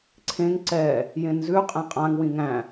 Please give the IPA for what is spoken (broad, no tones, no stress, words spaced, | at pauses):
ǀʰẽŋ ǀɛ | jẽnzʉ qʼẽqʼãŋ wĩŋæ̃